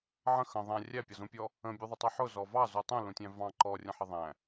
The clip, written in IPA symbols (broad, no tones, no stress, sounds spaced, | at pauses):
ʕ ə̃ x ə̃ ðˤ æ̃ rʲ æ pʲ ɒ z ũ pʲ ɔ | ə̃ bʲ u ðˤ ʊ tˤ u ħ ʊ z ɔ v ɑ z u tˤ ũ l ũ tʲ æ̃ v ɑ̃ ǃ ɔ rʲ ə̃ ħ ɪ ðˤ æ̃